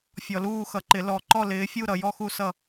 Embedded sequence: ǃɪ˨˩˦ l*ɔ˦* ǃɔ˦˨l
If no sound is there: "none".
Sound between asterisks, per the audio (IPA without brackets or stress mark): ɔ˨